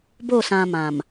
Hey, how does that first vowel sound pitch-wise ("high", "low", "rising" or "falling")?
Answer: falling